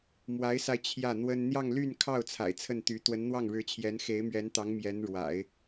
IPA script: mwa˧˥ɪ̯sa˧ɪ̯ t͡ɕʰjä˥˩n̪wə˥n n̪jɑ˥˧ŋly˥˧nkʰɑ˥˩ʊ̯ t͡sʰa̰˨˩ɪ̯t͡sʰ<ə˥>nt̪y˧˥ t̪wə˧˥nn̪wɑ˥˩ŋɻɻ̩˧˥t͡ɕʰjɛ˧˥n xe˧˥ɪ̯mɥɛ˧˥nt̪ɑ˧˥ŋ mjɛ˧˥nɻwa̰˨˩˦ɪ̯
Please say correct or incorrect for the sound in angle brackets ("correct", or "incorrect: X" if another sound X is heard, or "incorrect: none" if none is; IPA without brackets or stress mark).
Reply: incorrect: ə˥˩